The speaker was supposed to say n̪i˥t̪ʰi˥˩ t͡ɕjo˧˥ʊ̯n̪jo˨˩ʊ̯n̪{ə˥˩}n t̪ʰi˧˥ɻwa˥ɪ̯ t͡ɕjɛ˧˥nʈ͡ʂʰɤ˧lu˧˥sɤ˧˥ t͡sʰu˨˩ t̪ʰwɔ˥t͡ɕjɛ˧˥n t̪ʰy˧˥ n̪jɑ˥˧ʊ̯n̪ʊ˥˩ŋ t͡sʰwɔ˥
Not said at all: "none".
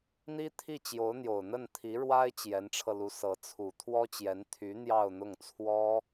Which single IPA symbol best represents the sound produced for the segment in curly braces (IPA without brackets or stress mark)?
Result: ə˥˩